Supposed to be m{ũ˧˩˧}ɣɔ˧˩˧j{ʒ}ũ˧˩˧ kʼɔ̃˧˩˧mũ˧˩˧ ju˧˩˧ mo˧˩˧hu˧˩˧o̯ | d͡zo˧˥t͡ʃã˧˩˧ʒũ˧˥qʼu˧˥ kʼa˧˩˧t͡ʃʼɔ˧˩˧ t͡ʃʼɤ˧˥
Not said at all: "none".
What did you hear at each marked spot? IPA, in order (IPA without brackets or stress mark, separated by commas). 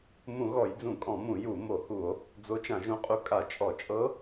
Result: ũ˧˩˧, d͡z